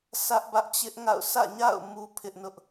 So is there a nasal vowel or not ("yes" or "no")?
no